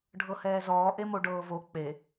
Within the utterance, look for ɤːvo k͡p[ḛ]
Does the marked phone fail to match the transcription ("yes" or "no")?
yes